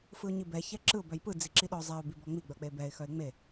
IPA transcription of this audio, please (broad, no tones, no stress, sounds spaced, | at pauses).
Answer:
f ɯ ʊ̯ ɲ i b ɛ ç ɛ ǁ ɯ ʊ̯ b œ j p ɯ d͡z i ǁ i ɗ ɔ zˤ ɛ ʊ̯ b i b ɔ ŋ͡m i ɡ͡b œ k͡p e b ɛ ɪ̯ x œ ɪ̯ ŋ͡m e